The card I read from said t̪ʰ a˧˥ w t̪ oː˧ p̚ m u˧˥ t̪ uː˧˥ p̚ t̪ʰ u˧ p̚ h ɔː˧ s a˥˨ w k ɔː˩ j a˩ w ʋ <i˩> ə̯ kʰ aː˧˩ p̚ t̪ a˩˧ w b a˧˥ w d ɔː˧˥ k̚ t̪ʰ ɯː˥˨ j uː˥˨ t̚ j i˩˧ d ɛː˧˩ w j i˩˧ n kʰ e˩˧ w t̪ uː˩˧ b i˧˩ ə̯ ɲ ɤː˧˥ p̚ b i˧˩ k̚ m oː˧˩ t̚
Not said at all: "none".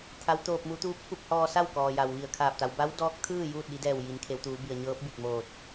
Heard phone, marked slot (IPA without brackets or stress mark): i˧˩